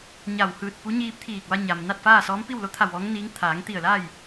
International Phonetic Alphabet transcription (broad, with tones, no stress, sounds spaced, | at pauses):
ɲ a˧˩ w h ɯː˧˩ t̚ p u˧˥ ɲ iː˧ p̚ t̪ʰ iː˧˩ k̚ ʋ a˧ ɲ a˩ m n a˥˨ t̚ f aː˥˨ s ɔː˧˥ m p i˥˨ w l o˧˥ t̪ʰ a˧˩ w ʋ ɔː˧˥ ŋ n iː˧˥ ŋ t̪ʰ aː˩˧ ŋ t̪ i˧˩ ə̯ l a˥˨ j